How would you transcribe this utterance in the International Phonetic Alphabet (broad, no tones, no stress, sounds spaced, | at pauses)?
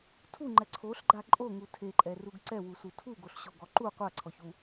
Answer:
tʰ u ŋ͡ǃ ɛ ǀʰ o ɬ ɡ͡ǃ a ǃʼ o ŋ u tʰ e ǃʼ ɛ r u ɡ ǀ ɛ w u s u tʰ u ɡ o ɬ ɕ o ɡ ɔ ǃ u qʷ a ǀʰ ɔ ç u